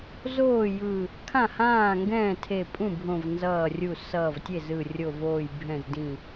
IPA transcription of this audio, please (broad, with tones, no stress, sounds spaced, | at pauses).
z oː˥˩ j ɯ˧˩ | kʰ ã˥˩ h ãː˥˩ ŋ ɡ ɛ̃ː˥˩ tʰ e˧˩ pʼ ũ˥˩ bʱ õ˧˩ v n z ʌː˧˩ rʲ u˧˩ s ʌː˧˩ v tʲ e˥˩ z ɯ˧˩ rʲ o˧˩ v oː˧˩ j bʱ ɛ̃˧˩ z d ĩ˧˩